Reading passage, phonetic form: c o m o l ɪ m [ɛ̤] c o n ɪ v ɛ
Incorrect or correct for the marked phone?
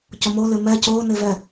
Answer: incorrect: ɛ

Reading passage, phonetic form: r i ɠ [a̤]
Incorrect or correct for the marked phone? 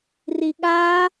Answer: incorrect: a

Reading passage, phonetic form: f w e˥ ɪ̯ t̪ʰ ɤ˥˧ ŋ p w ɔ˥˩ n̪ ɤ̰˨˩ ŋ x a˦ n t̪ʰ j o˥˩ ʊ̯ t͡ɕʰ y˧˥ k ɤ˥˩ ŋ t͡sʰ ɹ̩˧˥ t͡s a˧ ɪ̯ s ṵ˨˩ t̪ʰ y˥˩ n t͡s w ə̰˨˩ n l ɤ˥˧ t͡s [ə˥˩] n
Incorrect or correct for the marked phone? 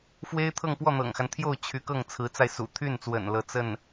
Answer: correct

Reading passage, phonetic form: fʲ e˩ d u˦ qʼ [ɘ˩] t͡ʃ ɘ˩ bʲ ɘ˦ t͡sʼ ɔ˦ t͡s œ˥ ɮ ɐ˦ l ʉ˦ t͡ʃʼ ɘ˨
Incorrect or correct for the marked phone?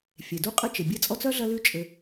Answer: incorrect: ɘ˦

